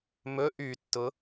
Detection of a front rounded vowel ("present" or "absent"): present